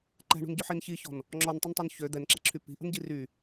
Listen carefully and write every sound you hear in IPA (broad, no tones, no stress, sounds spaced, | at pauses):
ǃ ɛ̤ ɳ ṳ n ɟ ø ħ i n ç i ç ɔ̤ n | ŋ͡ǁ ɔ n tˤ u n tˤ ø n ç ø d̪ ɛ n ǁ ɛ̤ ǁʰ y p i̤ ʔ ə̤ n ɟ i r y